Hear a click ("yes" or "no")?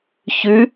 no